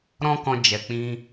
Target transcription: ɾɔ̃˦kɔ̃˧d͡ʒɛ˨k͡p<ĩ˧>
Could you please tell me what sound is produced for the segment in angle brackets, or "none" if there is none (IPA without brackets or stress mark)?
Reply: ĩ˧